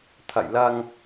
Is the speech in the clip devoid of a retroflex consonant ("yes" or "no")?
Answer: yes